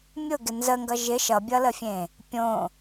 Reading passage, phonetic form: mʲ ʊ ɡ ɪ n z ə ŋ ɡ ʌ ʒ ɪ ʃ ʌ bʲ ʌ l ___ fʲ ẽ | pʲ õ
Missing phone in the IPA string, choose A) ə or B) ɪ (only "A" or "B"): A